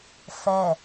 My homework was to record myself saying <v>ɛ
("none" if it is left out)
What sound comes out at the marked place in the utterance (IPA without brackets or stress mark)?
f